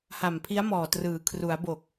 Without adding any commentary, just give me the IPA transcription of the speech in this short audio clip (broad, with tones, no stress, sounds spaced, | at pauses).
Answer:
h a˨˩ m pʰ i˦˥ a̯ m ɔː˨˩ t r ɯː˩˦ kʰ r u˩˦ a̯ b o˨˩ k̚